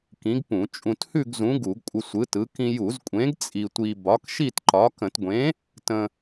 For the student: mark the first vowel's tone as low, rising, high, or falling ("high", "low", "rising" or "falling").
rising